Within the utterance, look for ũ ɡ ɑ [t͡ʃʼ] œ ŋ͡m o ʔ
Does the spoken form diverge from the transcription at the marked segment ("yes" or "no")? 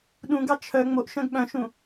yes